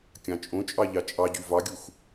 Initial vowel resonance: nasal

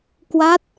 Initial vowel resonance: oral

